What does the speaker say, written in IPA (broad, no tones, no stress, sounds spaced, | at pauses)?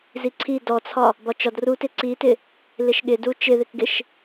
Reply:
z i ǀʰ i d ɔ t͡sʰ ɒ | b ɒ t͡ʃ ɒ d r u t ɪ ǀ i t ɪ | l ɪ ʃ ɠ ɪ d u t͡ʃ ɪ ð ɪ k ɡ ɪ ʃ